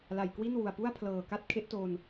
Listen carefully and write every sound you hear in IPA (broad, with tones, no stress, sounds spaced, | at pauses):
l a˨˩ j k w i˥˩ n w u˨˩ a̯ p u˥˩ a̯ pʰ l ɤː˨˩ k a˦˥ t̚ kʰ e˦˥ ʔ t o˧ n